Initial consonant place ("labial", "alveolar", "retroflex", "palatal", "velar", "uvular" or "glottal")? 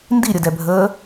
alveolar